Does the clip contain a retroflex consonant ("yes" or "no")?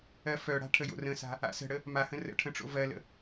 yes